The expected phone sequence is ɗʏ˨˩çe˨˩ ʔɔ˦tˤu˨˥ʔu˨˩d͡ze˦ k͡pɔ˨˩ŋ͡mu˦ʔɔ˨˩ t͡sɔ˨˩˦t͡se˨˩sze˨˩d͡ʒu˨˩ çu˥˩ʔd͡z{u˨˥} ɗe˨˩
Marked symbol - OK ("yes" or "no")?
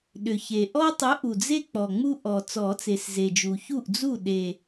no